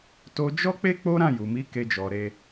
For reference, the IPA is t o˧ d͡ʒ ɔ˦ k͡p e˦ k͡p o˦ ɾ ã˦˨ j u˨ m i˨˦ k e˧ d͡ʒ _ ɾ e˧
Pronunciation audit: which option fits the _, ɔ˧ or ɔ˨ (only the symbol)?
ɔ˨